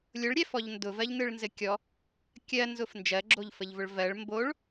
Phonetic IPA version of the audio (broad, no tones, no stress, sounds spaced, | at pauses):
lʲ ʊ ɭ ɾʲ ɛ f ɔ ʎ n d ʊ v ɜ ʎ n ɯ ɭ n z ɘ kʲ ɔ | kʲ ɜ n z ʊ f n d͡ʒ ɜ ɡ͡ǁ o ʎ f ə ʎ v ʊ ɭ v ɜ ɭ m b o ɭ